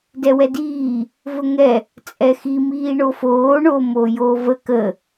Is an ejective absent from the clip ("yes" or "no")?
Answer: no